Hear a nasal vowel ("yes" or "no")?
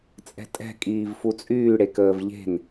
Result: no